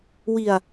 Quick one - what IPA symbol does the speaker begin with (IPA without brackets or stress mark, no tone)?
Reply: w